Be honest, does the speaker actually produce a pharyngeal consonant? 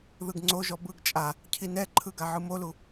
yes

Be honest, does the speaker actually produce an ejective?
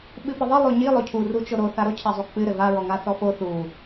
no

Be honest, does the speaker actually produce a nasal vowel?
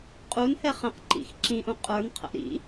yes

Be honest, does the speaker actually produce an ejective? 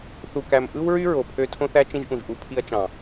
no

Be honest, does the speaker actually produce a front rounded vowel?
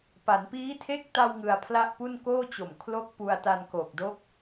no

